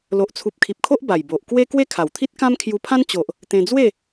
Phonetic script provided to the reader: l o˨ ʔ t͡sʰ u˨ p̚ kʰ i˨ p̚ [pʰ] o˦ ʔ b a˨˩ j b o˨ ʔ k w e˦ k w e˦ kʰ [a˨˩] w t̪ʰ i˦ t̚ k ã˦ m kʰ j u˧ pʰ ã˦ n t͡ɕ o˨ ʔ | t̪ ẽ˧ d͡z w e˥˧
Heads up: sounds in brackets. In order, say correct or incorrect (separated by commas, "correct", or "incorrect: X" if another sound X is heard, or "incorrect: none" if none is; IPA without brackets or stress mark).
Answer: incorrect: kʰ, correct